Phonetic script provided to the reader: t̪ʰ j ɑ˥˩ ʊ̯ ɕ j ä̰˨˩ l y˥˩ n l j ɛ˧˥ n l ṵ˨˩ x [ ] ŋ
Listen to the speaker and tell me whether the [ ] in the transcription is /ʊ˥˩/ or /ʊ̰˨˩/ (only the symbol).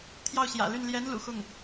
ʊ˥˩